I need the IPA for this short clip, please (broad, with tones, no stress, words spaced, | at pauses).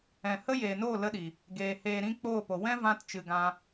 ɛ̃˨ hə˦ jeː˨noː˦˨ lə˧ɗi˨ | ɡeː˨ heː˨ɾĩ˧ k͡poː˦˨po˨ wɛ̃˦vã˧t t͡ʃɨ˨ɡã˧